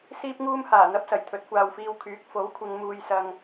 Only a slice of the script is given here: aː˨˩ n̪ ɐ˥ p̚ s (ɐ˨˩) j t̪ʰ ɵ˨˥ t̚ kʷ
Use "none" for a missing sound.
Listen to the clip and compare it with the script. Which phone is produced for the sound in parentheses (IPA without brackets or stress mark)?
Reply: ɐ˨˩